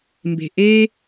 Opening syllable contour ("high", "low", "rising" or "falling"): low